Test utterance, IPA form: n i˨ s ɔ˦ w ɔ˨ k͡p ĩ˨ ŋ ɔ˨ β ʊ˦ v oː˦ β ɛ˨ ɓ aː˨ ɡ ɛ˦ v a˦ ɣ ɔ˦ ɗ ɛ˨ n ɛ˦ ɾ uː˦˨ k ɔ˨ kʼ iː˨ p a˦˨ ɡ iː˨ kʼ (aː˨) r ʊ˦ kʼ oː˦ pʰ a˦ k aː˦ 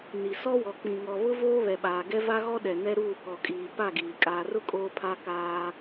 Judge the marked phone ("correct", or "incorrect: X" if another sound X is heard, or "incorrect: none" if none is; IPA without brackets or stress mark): correct